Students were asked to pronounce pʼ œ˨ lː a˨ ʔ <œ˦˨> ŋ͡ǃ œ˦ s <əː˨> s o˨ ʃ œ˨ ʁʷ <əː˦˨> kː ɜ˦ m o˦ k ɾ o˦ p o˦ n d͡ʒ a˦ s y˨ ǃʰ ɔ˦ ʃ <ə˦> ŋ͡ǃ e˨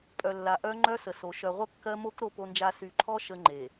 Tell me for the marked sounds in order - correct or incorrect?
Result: incorrect, incorrect, incorrect, correct

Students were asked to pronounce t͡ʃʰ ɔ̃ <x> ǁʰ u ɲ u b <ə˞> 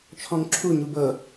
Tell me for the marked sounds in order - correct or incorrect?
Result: incorrect, incorrect

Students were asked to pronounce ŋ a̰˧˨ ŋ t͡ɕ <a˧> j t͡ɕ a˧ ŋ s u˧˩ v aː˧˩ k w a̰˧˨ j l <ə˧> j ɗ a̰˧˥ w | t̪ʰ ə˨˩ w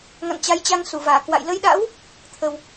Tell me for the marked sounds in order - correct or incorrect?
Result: incorrect, correct

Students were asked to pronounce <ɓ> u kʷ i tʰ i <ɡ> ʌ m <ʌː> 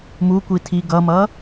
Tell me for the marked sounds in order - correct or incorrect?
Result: incorrect, correct, correct

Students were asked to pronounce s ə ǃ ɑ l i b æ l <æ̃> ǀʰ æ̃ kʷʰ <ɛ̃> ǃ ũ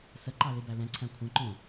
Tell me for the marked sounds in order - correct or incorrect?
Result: incorrect, correct

